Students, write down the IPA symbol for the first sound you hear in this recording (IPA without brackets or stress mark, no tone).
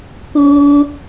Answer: k